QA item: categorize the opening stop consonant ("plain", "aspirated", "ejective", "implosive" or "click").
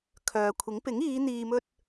aspirated